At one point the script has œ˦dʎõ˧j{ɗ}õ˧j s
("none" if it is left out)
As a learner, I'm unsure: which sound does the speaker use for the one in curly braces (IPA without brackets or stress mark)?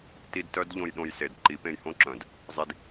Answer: ɗ